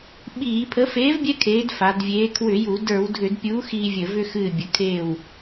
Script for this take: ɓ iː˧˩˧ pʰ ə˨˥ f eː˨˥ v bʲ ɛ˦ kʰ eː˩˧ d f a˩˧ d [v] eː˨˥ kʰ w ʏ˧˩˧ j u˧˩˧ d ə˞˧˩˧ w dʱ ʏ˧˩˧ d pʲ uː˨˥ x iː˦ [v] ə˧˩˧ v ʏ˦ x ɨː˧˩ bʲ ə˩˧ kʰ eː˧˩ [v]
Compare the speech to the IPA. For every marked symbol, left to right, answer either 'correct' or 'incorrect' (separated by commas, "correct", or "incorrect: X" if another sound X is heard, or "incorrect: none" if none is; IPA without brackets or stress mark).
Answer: incorrect: vʲ, incorrect: vʲ, incorrect: w